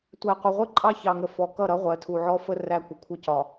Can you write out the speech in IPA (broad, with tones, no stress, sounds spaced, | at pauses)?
tʷ æ˨ qʷ ɪ˨ ʁʷ ɪ˦ ǃʼ ɑ˦ ç ɑ˨ ŋ ə˨ f ɔ˨ k ʌ˦˨ ɾ ʌ˦ ʁʷ ɜ˨˦ tʰ u˨ ʕ ɔ˦ f ə˦ r æ˦ kʷ ə˨ kʷʰ ə˦ c ɒ˨